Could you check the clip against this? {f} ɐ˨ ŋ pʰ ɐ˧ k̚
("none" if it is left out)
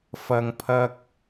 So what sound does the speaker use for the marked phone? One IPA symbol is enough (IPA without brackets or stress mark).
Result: f